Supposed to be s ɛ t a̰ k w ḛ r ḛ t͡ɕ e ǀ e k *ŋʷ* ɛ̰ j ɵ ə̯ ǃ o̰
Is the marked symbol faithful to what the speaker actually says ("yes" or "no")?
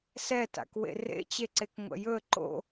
yes